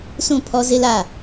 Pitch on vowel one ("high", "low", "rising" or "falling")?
falling